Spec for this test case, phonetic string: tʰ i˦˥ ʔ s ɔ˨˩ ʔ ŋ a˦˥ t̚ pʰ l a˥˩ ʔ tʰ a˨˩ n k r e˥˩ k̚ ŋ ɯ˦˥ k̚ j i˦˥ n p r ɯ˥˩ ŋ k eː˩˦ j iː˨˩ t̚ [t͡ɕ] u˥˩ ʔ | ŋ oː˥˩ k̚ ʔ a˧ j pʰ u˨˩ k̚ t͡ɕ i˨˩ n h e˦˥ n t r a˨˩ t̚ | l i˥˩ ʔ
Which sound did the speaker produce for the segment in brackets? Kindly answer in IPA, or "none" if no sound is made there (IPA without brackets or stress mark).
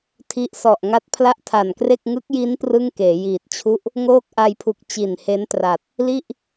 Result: t͡ɕʰ